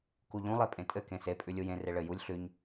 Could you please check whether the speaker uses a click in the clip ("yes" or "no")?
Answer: no